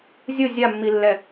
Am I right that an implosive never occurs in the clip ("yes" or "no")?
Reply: yes